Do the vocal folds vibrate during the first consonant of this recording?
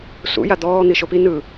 no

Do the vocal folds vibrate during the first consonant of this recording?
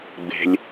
yes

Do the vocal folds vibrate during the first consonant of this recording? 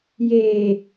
yes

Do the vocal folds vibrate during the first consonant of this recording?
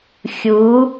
no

